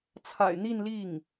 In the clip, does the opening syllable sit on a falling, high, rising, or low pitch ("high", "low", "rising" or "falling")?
low